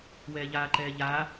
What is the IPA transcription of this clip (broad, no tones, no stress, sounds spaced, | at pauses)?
w ɛː ʎ aː ǃ ɛː ʎ aː